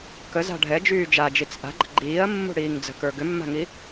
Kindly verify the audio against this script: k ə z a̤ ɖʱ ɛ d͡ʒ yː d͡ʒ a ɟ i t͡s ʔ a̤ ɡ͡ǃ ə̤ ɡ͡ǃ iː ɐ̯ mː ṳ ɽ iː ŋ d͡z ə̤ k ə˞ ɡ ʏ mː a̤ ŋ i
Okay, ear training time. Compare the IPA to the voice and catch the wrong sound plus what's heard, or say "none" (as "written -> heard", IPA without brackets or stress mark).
ɟ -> d͡ʒ